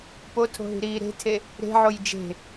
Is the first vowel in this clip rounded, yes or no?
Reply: yes